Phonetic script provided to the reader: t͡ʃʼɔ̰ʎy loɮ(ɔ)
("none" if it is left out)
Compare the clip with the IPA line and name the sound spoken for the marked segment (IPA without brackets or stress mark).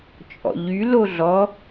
ɔ